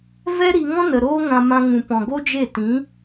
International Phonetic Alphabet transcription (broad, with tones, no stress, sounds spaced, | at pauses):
v ɛ˦ ɾ i˧ ŋ ɔ̃˦ n ə˨ ɾ oː˦ ŋ ã˧ m ã˧ ŋ ũ˨ p ɔ̃˨ ɡ o˦ d͡ʒ e˦˨ t ĩ˨˦